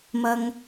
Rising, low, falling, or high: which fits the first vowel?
low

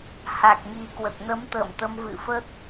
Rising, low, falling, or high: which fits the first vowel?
low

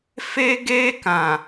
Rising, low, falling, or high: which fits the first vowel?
high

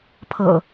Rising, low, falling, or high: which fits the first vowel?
low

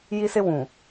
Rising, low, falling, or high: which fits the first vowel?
high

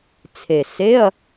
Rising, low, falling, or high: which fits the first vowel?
low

